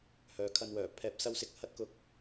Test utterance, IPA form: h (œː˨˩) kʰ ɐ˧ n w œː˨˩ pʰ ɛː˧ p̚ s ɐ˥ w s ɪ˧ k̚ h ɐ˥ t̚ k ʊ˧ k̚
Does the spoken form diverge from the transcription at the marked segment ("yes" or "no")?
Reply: yes